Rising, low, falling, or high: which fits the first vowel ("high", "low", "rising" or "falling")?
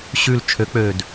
low